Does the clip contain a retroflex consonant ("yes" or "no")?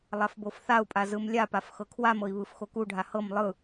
yes